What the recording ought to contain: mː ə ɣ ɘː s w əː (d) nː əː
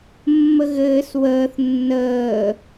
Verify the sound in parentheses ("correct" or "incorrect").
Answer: incorrect